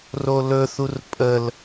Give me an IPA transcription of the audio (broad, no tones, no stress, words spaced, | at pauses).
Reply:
rolɵθur pʼəl